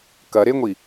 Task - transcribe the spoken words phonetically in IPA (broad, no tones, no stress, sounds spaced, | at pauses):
k ɐ ɾ e ŋʷ i